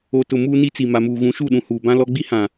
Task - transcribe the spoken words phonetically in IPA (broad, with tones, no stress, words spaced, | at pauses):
o˨tʊ˨ muː˦ ni˦t͡si˨ ma˨muː˨ ɣũ˨˦ʃu˦˨ɗũ˨ huː˨bã˦lɔ˦ ɡ͡bi˦hã˨